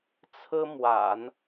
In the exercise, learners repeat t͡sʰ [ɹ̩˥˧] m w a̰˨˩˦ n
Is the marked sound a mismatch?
yes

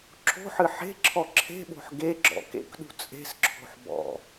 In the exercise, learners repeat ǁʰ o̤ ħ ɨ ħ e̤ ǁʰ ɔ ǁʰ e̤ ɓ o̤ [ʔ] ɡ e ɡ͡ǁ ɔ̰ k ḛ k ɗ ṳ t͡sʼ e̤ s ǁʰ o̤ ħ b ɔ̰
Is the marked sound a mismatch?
yes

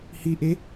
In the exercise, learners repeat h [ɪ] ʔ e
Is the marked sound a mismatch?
yes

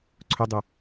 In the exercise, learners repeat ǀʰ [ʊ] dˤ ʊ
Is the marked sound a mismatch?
no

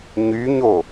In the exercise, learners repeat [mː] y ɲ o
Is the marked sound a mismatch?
yes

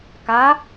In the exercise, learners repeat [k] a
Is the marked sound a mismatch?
no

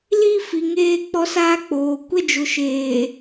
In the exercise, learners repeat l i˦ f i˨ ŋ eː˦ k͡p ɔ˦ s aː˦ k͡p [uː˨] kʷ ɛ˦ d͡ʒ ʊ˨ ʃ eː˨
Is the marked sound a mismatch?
yes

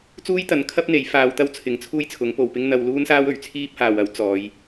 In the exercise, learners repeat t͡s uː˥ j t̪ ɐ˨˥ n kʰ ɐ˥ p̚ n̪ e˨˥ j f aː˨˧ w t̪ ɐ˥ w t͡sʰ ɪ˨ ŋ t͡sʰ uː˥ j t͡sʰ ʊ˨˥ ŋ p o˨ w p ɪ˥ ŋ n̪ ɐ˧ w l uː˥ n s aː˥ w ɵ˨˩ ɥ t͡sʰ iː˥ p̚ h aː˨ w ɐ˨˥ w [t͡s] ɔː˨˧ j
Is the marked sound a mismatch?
no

